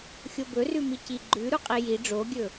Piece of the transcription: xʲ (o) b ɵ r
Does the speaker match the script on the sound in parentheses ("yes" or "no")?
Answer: yes